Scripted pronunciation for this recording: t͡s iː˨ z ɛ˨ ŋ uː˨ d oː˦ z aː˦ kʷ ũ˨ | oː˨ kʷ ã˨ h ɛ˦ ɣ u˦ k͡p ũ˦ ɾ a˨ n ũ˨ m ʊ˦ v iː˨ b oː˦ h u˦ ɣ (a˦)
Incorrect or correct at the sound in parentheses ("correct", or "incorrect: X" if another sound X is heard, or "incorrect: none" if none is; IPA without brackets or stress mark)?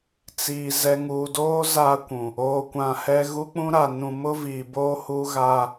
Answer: correct